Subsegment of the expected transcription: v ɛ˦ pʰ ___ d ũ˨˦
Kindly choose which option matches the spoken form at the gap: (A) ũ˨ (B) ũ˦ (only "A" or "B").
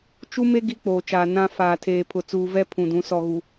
A